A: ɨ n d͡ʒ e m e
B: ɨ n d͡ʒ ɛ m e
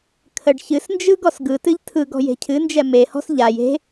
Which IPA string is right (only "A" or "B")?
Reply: B